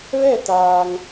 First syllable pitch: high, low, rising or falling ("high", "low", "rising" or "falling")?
falling